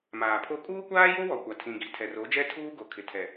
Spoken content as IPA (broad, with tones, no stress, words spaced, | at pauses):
maː˨pʰo˦ kʼuː˦kʷaː˦jo˦wɔ˨ kʷa˨tʰĩ˨ɡi˨ tʰɛ˨ro˨˦d͡ʒɛ˦ tʰuː˦ɡo˨ kʰɪ˨tʰɛ˨